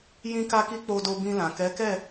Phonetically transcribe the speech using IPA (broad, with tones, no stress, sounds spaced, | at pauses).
j ĩ˦ k a˦ k i˦ k͡p o˧ d o˧ b ĩ˧ l ã˨ k ɛ˨˦ k ɛ˦˨